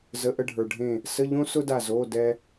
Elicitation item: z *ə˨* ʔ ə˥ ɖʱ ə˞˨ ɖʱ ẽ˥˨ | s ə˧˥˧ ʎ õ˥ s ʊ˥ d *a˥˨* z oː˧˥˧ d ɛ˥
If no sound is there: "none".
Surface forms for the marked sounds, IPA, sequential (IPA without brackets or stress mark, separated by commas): ə˧˥˧, a˥˨